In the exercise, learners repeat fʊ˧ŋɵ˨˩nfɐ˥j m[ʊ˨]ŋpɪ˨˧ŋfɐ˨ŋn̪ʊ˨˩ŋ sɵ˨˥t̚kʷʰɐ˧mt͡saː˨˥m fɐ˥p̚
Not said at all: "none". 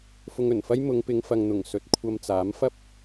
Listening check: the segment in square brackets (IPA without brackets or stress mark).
ʊ˨˧